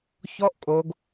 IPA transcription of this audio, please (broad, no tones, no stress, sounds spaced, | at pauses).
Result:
ç ɔ ʔ kʼ o ɡ